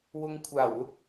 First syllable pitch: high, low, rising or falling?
low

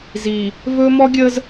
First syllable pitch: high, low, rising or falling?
low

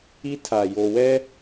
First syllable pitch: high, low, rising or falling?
high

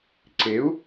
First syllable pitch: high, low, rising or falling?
rising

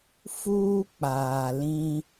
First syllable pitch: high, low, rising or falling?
high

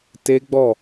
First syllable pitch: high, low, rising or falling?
high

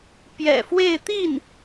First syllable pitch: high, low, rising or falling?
low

